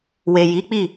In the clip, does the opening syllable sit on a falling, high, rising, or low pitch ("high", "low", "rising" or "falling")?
low